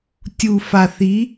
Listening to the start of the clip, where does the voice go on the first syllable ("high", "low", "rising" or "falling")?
low